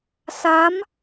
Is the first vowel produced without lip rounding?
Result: yes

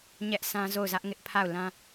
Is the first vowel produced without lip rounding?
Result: yes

